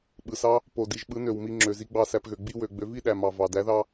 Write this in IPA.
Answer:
ɓɯ˨sɑ˦ | po˨di˨ʒ ɓɯ˨˦nø˨w mi˧ŋ͡ǁø˨zi˧ ɡ͡bɑ˦˨sæ˧pɣø˨ ɡ͡bi˦wø˨ɡ͡bø˨˦ vi˦ɗæ˨ mɑ˨vɑ˨dæ˨˦ðɑ˦

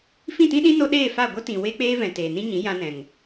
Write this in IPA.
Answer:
fĩ˦˨tĩ˦ɗĩ˦ no˦ɗeː˦˨fa˦˨ ɡʷə˦tĩ˨ we˦k͡peː˦vɛ̃˨ teː˨nĩ˦ɲĩ˨˦ jã˧nɛ̃˨ŋ

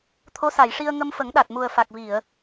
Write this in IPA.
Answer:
t̪ʰo˧˥sa˨˩˨jʂi˧ə̯ ŋə˧mfə˨˩˦ŋɗa˨˩t̚ mu˨˩ə̯fa˨˩k̚vi˨˩˨ə̯

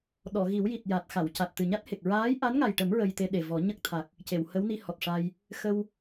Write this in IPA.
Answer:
ɗɔ˨˩˨ɣi˨˩˦wji˨˩t̚ ja˨˩t̚xa˨˩˨w ca˨˩t̚t̪ɨ˨˩ɲa˦˥t̚he˨˩k̚ ɹaː˧˥jʔa˧˥nŋa˨˩jʈə˨˩˦m ɹə˧jt̪e˧ɗe˨˩vɔ˨˩˦ ɲə˦˥k̚t̪ʰa˨˩k̚ | ce˨˩˨whə˧˥wni˧ hɔ˨˩t̚ʂa˧j | xə˧w

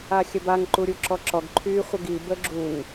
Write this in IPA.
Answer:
axʲəbaŋ ǃuɾʲuǁɔǁɔɡ ǃʰy χʷəɡi bəɡ͡ǁuŋ

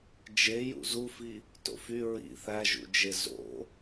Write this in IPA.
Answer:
d͡ʒejṵ zufi | to̰fy ɹḭ θæʒṵd͡ʒe zo̰

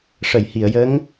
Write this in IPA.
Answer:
ʂə˨˩˨jhi˨˩˨ə̯jə˧˥ŋ

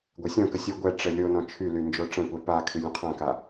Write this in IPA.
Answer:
ɡʷɛsʲɔ̃kə sʲə ɡʷɛʈ͡ʂə lʲonɔ̃ t͡ʃʰyly nd͡ʒoʈ͡ʂə̃kʷɛ pakʰy lʲə̃qʰãka

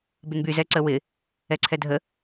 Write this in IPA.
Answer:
bɪnby zɛǀəwɪ | ɛǀʰɛdʱə

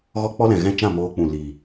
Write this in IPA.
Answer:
ɣɔ˦ k͡pɔ˦lɛ̃˨ɣɛ̃˦˨t͡ʃã˦˨ moː˧k͡pũ˨ li˨

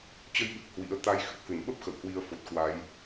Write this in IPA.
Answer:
t͡ɕə˧jɓɨ˨˩k̚ hwḭ˧˥ə̯ t̪a˧j xɨ˨˩k̚hɨ˧˩nɓə˦˥p̚ xə̰˧˨w hwi˧ə̯fo˨˩t̚kwa˨˦j

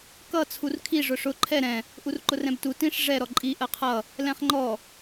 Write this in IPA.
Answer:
kʌ t͡sʰurkʰi ʐʊʂʊ ǃʰɛ ɾɛ̃ | ʔurǃʊrɛ̃btu tĩʂ ʐɛ ɾɔǃʼi ʔɜqʰʌ | lɛ̃χŋ͡ǃɔ

